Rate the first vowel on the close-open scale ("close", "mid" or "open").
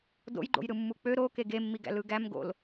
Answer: mid